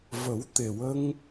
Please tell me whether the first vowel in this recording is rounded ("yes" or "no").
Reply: no